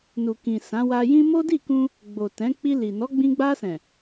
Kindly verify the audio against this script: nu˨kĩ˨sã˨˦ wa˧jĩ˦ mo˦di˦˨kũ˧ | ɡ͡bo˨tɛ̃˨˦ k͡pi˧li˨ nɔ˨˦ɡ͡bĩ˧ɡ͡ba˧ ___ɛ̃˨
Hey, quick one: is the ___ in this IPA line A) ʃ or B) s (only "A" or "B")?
B